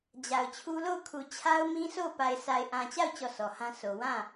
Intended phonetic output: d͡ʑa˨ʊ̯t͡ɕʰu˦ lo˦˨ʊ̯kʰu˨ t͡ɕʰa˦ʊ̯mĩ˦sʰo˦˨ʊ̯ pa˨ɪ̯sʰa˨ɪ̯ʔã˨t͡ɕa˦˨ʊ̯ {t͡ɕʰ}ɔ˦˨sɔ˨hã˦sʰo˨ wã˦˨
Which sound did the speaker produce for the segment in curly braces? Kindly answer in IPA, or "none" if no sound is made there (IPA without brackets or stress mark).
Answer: t͡ɕ